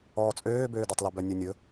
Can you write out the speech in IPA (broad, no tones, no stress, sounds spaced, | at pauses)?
ɔː t͡sʼ øː b øː d ɔ tˤ l y b œ nʲ ʉ nʲ ɵ